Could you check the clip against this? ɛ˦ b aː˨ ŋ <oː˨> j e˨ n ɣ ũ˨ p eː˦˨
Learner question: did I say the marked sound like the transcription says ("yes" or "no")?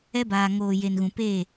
yes